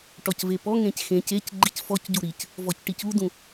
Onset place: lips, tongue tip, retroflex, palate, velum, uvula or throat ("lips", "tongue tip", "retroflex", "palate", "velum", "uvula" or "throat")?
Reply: retroflex